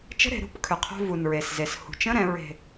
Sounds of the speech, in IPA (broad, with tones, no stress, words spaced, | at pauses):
t͡ʃə̤˧˥˧ɾe̤˩˧ɾṳ˧˥˧p kʰʏ˩˧qʰo̤˧˥˧ vu˨˩nɹe˨˩sze˩˧s hṳ˩˧t͡ʃə̃˧˥˧ɾɛ̃˩˧ ɹe̤˨˩